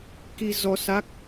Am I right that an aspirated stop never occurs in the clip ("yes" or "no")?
yes